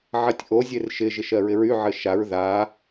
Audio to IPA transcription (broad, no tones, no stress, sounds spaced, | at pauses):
ʕ ɜ tʲ ʔ o zʲ e r ʃ ɪ ʒ ɪ ʃ ɜ ɹ ɪ ɹ y ʕ ɘ ʃ a ɹ ð a